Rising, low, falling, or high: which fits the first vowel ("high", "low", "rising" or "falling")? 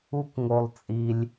high